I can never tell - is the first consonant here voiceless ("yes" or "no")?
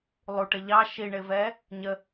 no